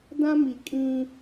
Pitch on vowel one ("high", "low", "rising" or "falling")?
high